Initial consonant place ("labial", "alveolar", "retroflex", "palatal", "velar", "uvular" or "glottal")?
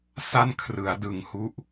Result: alveolar